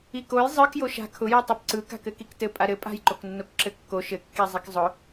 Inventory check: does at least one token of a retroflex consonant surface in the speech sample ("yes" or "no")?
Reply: no